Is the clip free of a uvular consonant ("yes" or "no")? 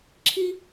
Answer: yes